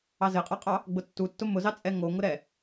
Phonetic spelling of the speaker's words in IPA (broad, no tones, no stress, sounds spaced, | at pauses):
ɑ z ɘ qʼ ɑ qʼ ɑ | ɡ͡b ʊ tː u tː ʊ m ʊ z ɑ t͡sʼ ɛ ŋ o ŋ ʊ ɾ ɛ